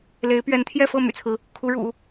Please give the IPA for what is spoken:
l e˧˥ ɪ̯ p ɥ ɛ˧˥ n t̪ʰ j ɛ˥˧ f ɤ˥˩ m y̰˨˩ t͡sʰ ɹ̩˦ | kʰ u˧˥ ɻ ṵ˨˩˦

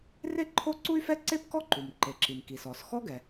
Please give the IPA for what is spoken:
r e˥ ǃʰ o˥ ǀ u˥ y̯ f ɛ˥ ǀ e˥ p k ɔ˥ ǃ u˩ m ǃ e˩ ǁ i˩ m k i˩ s ɔ˩ s x ɔ˥ ɡ ɛ˩

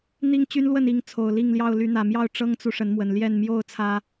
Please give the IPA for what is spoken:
n̪ i˦ ŋ t͡ɕ y˦ n l w ə˥˨ n i˥˨ ŋ t͡sʰ o˨˩ ʊ̯ l i˥˨ ŋ l j ɑ˥˨ ʊ̯ l y˨˦ n̪ ä˨˩ m j ɑ˥˨ ʊ̯ ʈ͡ʂ ɤ˦ ŋ t͡s u˨ ʂ ə˨˦ n m w ə˨˩ n l j ɛ˥˨ n m j o˥˨ ʊ̯ t͡sʰ ä˨˦

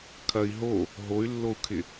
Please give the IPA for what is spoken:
kʰ ɐ i̯ ɦ o | ɦ o y̯ lː o u̯ kʰ ɪ

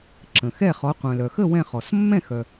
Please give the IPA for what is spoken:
ǁ ə̃˩ x ɛ˥˩ χ ɔ˩˥ qʷ œ̃˩ l œ˩ x ə˥˩ w ɛ̃˥˩ χ ɔ˩ s mː ɛ̃˥˩ x œ˩

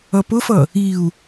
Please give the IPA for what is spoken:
ʌ p ʊ f ʌ | i u̯

